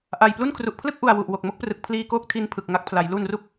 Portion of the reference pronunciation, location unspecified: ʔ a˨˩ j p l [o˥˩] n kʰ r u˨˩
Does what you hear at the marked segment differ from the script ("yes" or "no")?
yes